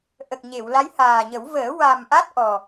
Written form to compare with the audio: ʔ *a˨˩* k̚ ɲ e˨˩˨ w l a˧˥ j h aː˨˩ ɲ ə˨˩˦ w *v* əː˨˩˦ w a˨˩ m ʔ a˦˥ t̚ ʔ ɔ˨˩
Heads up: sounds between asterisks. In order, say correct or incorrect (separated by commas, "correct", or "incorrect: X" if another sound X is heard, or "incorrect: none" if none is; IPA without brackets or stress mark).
incorrect: ə˨˩, correct